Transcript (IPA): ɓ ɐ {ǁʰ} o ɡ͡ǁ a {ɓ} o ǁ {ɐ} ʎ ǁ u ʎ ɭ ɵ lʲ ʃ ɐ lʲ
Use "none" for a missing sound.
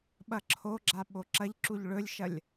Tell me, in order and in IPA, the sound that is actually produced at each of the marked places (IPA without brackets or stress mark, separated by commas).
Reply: ǁʰ, ɓ, ɐ